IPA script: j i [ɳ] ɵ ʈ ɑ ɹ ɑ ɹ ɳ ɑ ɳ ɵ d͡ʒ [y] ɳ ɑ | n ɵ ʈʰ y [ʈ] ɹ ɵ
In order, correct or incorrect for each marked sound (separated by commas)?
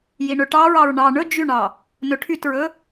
correct, correct, incorrect